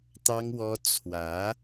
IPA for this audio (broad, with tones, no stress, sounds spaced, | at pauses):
t̪ ɑ˥ ŋ w ɔ˥ t͡sʰ w ä˧˥